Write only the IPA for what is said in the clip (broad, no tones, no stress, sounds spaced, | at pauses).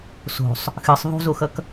s o̤ sˤ | x ɨ sˤ ðˤ ṳ z o x ʌ k